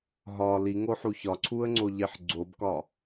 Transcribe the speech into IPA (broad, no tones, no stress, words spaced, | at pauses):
ɦɒ liŋoħu çɒǀʰuə̯ŋ͡ǀoʎeħ ɡ͡ǀobkɒ